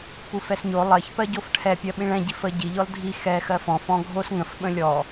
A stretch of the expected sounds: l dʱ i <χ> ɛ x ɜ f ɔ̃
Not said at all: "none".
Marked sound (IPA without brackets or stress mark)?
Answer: x